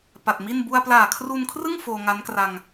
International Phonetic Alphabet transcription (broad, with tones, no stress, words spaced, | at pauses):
pa˨˩t̚mi˥˩n bu˧a̯plaː˨˩kʰru˧nkʰrɯ˥˩ŋ foː˧ŋa˦˥nkra˧ŋ